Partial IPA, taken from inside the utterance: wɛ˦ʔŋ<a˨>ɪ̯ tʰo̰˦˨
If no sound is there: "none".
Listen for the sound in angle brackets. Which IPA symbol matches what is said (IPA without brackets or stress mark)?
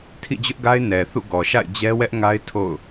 a˦